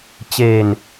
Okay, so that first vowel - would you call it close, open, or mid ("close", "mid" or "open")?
mid